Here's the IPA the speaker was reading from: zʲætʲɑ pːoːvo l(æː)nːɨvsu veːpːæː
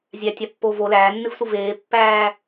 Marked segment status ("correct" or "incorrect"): correct